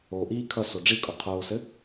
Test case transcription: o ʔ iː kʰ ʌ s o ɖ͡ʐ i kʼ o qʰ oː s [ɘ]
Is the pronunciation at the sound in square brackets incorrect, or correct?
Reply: correct